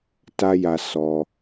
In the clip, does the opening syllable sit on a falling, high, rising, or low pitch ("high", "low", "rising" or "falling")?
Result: high